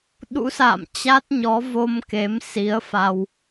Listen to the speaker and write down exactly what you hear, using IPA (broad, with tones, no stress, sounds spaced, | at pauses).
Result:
ɗ ṵ˧˥ s a̰ː˧˨ m t͡ɕ a˦˥ t̚ ɲ ɔ˨˦ v o˧ m k e˨˦ m s i˨˦ ə̯ f a˧ w